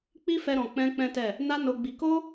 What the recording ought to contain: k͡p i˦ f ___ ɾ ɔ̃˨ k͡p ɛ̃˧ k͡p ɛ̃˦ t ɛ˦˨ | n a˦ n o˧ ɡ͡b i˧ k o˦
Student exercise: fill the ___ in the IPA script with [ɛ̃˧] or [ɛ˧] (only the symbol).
ɛ˧